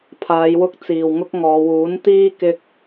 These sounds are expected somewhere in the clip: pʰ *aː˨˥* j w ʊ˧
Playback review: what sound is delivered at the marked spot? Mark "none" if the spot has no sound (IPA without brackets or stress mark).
aː˨˧